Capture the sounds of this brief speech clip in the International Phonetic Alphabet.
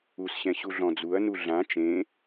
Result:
u s ɕ ɛ̃ ɕ u ɮ ɔ̃ d͡z u ɐ̯ n u ɮ ã t͡ʃ ẽ

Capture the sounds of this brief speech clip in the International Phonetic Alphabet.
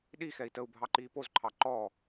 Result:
ɗ i x ɛ i̯ t ə u̯ bʱ ɑ ǃ iː p o z ǃʰ ɑ ǃ ɔː

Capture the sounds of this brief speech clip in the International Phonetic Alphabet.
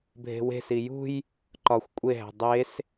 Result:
bʱ e̤ w e̤ s i j ṳ j | ǃ ɒ xʷ kʷʼ e ɦ æ̤ dˤ e s

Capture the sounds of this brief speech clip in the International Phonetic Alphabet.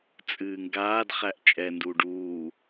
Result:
t͡sʼ ɨː ŋ ɡ aː d χ æ ʔ t͡ʃʼ ɛ n d uː ɖ uː

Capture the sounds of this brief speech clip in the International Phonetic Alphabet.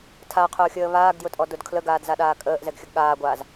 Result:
tʰ a qʰ ʊː xʲ əː β aː ɡ d j ʊ tʼ ɔ d ʊ d kʰ l ə ɡ aː d z a ɗ aː kʼ əː ʔ z ɛ ɡ xʲ ə ɡ ɠ aː ɡʷ aː z

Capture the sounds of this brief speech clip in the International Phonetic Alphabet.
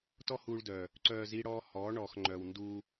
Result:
t ɔ˦ h uː˧ ɭ d œ˨ | ǀ œː˧ z i˦ ɽ ɔː˦ h ɔ˨˦ ɳ ɔː˨ x ŋ͡ǃ œ˨ w n d uː˧

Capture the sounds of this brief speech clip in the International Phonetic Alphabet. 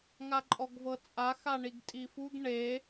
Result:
ŋ a ǃʼ ɔ ɡ v ɤ t͡sʼ a x a ɳ i ɡ tʼ i f u ɡ ɳ e

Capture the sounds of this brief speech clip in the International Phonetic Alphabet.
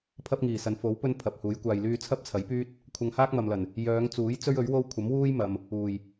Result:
pʰ ɐ˥ p̚ ŋ iː˨˩ s ɐ˨ n f o˨˥ w p ɵ˥ n pʰ ɐ˨ p̚ h uː˨˥ j kʷ aː˧ j l yː˥ t͡sʰ ɐ˥ p̚ t͡sʰ ɐ˨˥ j p yː˥ t̚ | kʷʰ ɐ˧ ŋ h aː˥ k̚ m ɐ˨ m l ɐ˨˩ n | j œː˨˧ ŋ t͡s uː˨˥ j t͡s ɵ˥ ɥ ɵ˨˥ ɥ w o˥ w kʷʰ ɐ˨˥ m w uː˥ j m ɐ˨ m | uː˨˩ j

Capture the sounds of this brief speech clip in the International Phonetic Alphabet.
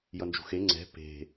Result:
j ʌ n d͡ʒ ṳ x e ŋ͡ǀ ɛ̤ p e̤

